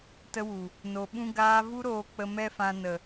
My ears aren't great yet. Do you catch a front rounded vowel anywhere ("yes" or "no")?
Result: no